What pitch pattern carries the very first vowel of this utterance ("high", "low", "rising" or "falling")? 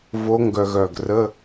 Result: rising